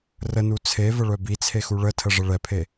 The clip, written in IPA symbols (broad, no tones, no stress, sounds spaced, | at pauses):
r ə n u t͡sʰ e v ə ɭ œ b i t͡sʰ e x u ɭ ə tʰ ə ʐ ə ɭ ɛ pʰ e